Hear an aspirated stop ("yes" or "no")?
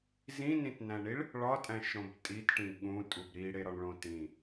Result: no